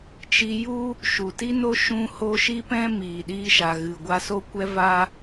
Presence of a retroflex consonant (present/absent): absent